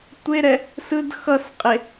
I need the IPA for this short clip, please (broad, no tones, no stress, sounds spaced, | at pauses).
tʷ e ɾ ɛ | s ɯ d x ʌ s qʼ e